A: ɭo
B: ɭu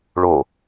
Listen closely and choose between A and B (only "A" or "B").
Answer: A